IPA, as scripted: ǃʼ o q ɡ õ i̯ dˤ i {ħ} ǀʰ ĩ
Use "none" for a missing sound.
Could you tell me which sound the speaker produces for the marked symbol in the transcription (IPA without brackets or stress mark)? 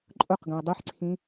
ħ